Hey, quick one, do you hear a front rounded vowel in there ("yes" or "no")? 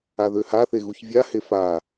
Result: yes